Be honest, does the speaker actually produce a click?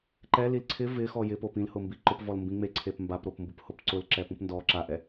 yes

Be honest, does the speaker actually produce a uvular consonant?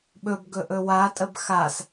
no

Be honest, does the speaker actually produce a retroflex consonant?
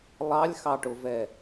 yes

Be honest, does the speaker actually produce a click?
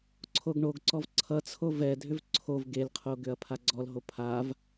yes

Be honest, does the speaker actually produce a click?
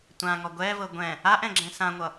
yes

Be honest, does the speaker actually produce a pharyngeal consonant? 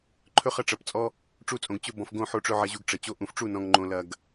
yes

